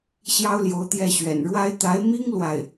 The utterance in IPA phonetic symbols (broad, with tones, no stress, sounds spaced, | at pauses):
ɕ j ɑ˥ ʊ̯ l j o˧˥ ʊ̯ t̪ j ɛ˥˩ ɕ ɥ ɛ̰˨˩ n ɻ w a˥ ɪ̯ t̪ a˧˥ ɪ̯ m i˥ ŋ l w a˥˩ ɪ̯